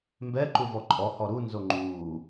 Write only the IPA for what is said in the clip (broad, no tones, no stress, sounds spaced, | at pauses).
m b ɛ ǃ u v ɔ ǃʼ ɔ h ɔ ɾ u n z o ŋ͡ǃ uː